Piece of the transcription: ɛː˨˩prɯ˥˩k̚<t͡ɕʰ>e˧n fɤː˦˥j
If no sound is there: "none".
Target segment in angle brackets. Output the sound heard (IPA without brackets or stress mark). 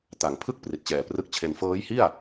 t͡ɕʰ